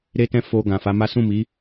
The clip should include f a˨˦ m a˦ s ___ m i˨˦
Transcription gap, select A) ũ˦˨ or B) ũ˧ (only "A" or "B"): A